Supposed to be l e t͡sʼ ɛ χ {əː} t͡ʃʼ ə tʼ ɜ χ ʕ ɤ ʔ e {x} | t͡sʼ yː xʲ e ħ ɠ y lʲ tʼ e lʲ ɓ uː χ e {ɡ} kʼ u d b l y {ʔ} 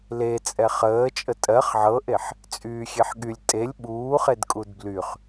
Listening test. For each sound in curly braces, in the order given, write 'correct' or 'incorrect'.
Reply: correct, incorrect, incorrect, incorrect

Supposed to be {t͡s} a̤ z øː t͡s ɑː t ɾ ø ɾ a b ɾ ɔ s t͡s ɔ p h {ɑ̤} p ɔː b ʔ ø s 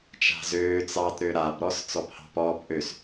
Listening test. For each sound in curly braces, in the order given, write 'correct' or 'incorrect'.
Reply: incorrect, correct

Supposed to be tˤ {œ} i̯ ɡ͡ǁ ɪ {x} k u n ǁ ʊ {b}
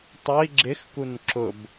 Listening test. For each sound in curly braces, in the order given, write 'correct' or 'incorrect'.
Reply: correct, correct, correct

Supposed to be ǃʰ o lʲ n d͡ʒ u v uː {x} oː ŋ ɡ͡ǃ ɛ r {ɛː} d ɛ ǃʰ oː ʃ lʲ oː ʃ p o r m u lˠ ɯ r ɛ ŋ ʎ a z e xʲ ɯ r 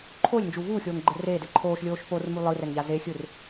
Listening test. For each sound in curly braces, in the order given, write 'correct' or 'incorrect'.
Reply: incorrect, incorrect

